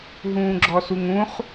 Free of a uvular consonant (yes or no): no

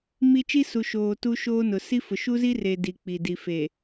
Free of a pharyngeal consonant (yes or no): yes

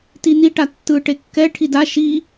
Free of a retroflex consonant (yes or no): no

